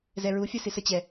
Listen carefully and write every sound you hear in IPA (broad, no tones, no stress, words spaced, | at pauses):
zɛɹu fʲɜsisə t͡ɕɛ